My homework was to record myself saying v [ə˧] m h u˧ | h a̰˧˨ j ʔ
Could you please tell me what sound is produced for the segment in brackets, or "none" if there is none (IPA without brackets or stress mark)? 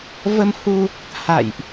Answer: ə˧